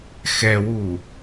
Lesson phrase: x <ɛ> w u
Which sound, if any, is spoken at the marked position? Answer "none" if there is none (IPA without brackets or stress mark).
ɛ